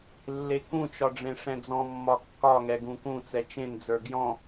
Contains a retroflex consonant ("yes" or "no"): yes